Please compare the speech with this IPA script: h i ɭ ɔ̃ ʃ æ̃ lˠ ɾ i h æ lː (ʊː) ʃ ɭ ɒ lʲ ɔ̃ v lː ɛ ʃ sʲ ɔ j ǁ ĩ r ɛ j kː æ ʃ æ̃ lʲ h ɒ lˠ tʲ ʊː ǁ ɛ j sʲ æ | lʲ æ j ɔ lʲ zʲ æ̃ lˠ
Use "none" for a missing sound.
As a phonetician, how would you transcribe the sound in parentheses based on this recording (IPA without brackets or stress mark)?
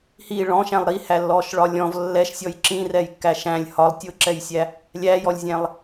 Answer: ɔː